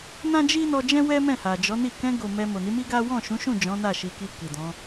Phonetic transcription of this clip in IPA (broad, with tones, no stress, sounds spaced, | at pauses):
n ã˦ d͡ʒ i˦ n ɔ˧ d͡ʒ ɛ̃˦ w ɛ˦ m ɛ̃˦˨ h a˨ d͡ʒ ɔ˨˦ n i˦˨ k ɛ̃˧ ɡ o˨ m ɛ˧ m o˨ n i˨˦ m i˦ ɡ a˦ w ɔ̃˦˨ ʃ ũ˨˦ ʃ ũ˦˨ d͡ʒ ɔ̃˨˦ n a˦˨ ʃ i˨ k i˧ k i˨ d ɔ̃˨˦